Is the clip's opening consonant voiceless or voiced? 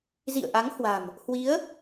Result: voiced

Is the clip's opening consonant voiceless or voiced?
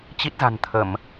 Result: voiceless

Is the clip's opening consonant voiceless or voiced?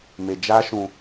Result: voiced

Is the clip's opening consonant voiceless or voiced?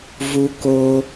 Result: voiced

